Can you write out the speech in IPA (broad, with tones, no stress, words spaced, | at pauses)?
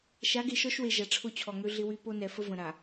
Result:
ʃa˨˦ɡe˨ʃɔ˦ʃwe˨ ʒa˨ʈ͡ʂʰʊ˦˨t͡ɕʰɔ˨ŋø˦ ɮɪ˦wy˦ po˦nɛ˨fə˦ və̃˨ɾa˨